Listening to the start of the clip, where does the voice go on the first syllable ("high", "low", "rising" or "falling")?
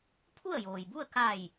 falling